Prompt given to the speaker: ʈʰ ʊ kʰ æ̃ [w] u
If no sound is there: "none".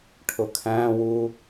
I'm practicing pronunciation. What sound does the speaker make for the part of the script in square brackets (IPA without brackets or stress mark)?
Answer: w